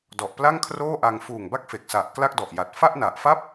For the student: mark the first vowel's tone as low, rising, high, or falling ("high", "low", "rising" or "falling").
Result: low